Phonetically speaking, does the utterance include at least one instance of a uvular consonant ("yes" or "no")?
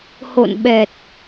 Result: no